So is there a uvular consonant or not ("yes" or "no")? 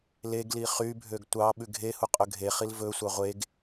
yes